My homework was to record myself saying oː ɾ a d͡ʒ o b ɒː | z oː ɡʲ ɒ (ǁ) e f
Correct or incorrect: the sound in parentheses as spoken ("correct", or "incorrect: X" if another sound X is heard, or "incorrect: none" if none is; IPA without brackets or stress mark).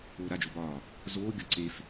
incorrect: ǀ